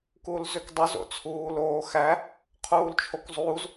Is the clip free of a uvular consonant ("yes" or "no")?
no